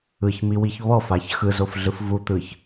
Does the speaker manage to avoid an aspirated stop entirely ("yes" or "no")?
yes